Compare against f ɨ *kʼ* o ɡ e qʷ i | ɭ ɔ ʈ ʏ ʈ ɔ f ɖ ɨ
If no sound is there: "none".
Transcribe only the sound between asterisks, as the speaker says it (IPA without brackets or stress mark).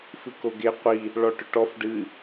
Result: k